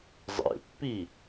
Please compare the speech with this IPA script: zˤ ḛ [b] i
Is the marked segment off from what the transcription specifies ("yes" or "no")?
yes